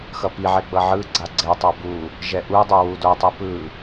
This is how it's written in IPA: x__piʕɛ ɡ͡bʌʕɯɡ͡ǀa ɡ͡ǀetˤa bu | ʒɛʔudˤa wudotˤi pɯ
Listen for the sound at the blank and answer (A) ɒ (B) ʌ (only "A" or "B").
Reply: B